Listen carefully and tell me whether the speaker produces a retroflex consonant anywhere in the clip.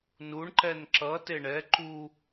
yes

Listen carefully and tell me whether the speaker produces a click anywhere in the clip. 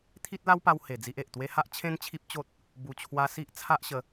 no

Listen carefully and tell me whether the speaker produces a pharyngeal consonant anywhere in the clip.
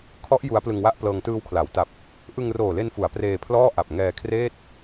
no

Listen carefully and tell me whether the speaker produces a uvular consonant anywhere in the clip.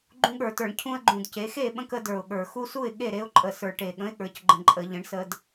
no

